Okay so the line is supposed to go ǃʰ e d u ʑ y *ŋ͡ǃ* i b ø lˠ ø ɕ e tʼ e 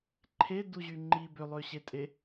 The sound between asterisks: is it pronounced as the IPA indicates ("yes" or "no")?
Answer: yes